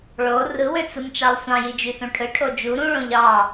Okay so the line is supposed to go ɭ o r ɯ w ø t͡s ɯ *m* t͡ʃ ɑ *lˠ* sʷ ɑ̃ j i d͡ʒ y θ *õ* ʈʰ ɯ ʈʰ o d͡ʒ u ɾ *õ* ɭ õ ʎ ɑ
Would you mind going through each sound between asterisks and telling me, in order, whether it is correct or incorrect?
correct, correct, correct, incorrect: ũ

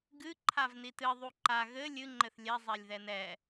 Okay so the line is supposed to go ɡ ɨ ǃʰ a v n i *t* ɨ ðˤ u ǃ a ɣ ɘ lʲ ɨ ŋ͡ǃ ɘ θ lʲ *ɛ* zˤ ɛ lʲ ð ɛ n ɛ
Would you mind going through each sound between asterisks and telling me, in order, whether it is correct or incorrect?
correct, correct

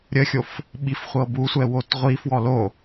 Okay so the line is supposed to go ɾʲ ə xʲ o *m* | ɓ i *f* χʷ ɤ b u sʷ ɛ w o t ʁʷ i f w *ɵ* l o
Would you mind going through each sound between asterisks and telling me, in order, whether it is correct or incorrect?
incorrect: f, correct, incorrect: ɔ

